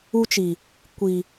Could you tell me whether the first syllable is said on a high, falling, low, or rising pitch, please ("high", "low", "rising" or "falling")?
high